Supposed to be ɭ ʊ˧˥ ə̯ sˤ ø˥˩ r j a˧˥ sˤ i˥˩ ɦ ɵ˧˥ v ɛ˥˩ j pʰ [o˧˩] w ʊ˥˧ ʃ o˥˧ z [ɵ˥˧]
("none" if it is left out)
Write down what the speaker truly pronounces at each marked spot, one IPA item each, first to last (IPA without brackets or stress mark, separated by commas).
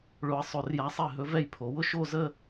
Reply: o˩˧, ə˥˧